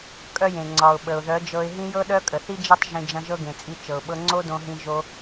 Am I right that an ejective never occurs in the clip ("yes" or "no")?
no